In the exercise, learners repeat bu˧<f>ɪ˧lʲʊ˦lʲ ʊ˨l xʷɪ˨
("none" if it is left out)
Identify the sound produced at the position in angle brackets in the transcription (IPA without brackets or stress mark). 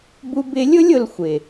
b